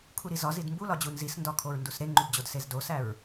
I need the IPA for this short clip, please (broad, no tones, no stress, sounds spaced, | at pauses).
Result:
kʰ u ɾ i z ɒ z i d m b u l ɒ d͡ʑ u n z i s n d ɒ kʰ o ɹ n d u s ɾ e ŋ͡ǃ u b d͡ʑ o d s e z d o s æ ɹ